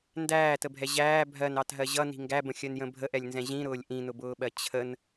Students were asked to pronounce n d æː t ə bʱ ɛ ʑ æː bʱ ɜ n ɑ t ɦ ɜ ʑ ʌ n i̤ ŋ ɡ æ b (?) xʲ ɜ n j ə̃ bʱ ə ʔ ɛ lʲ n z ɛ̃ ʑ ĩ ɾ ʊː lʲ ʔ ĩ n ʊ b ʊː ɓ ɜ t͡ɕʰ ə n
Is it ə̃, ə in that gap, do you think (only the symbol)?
ə̃